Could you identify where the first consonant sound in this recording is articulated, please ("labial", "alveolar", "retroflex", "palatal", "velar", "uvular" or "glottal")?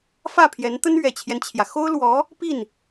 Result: labial